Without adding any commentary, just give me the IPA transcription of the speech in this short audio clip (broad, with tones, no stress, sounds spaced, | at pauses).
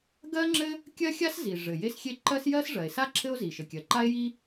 ɡ ɜ˥ ŋ͡ǁ ɘ˥ | kʲ ɜ˥ xʲ a˥ s z i˩ ʐ ɘ˩ j e˥ s xʲ e˥ ǃ ɜ˥ s j ɜ˥ s ʐ ɜ˩ e̯ s a˥ ǁʰ ɘ˥ o̯ z i˩ ʃ ɘ˩ kʲ ɜ˩ ǃ a˥ e̯ j i˥